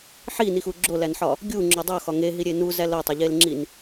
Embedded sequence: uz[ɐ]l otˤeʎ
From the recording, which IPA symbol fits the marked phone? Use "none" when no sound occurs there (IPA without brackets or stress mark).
æ